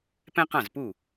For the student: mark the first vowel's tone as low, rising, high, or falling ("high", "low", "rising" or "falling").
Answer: high